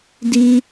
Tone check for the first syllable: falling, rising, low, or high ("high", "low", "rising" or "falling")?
high